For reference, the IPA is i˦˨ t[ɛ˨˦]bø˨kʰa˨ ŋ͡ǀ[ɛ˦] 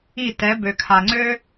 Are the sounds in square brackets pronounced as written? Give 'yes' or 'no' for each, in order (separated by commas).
yes, no